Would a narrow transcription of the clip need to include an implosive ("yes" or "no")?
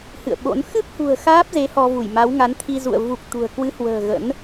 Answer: yes